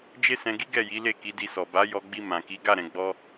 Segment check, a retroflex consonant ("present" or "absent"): absent